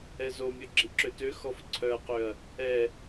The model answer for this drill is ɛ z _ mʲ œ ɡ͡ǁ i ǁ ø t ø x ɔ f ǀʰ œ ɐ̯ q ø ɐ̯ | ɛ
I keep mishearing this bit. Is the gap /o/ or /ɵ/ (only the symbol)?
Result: o